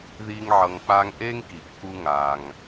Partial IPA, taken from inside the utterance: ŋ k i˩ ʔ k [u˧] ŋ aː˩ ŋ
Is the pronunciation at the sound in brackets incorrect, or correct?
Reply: correct